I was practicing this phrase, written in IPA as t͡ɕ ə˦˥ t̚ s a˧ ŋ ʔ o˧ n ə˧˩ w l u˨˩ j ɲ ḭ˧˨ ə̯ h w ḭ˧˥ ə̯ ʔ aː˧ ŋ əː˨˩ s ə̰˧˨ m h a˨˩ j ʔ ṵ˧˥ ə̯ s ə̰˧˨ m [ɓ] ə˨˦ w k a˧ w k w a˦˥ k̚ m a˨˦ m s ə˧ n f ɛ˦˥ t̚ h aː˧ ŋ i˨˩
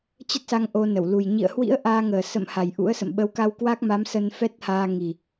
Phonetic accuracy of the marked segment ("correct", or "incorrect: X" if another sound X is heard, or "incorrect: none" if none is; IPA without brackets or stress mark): correct